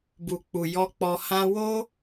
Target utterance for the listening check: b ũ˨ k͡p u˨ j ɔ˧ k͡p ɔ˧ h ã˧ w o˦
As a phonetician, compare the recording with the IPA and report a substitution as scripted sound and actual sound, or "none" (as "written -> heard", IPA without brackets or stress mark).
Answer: ũ˨ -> u˨